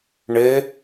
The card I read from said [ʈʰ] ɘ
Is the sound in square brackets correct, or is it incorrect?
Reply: incorrect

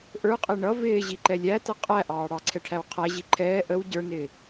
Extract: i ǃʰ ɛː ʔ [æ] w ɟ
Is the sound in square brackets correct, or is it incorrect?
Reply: incorrect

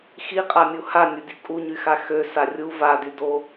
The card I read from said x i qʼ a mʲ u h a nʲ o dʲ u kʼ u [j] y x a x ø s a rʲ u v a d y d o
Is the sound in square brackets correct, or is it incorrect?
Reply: incorrect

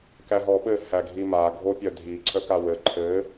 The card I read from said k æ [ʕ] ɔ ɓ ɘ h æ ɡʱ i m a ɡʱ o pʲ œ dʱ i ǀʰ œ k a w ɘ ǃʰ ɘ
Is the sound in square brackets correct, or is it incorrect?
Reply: incorrect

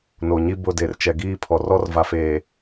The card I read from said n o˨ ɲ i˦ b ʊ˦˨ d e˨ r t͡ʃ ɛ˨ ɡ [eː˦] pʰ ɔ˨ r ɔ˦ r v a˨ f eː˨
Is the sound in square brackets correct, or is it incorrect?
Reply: incorrect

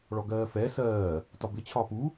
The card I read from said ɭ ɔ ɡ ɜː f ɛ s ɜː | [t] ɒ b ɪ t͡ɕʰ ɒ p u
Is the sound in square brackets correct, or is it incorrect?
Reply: correct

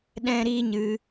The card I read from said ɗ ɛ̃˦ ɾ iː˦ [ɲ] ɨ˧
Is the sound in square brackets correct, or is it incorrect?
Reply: correct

